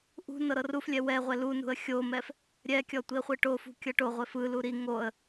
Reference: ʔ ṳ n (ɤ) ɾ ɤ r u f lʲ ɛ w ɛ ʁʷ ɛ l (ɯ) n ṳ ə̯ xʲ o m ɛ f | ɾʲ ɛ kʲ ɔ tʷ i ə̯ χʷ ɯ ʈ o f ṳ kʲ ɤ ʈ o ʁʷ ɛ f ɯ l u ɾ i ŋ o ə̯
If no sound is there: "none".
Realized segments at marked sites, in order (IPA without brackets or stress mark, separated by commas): ɤ, u